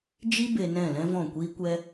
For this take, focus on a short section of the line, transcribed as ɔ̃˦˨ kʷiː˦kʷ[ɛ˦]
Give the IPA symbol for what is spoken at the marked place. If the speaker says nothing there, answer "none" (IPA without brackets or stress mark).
ɛ˦